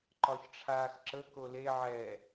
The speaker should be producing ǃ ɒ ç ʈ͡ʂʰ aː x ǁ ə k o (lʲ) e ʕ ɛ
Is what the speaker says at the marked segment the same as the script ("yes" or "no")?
no